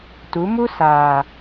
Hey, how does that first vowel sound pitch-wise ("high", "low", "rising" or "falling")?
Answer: rising